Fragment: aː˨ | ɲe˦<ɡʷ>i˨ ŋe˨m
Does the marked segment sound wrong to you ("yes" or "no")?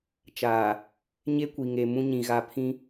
yes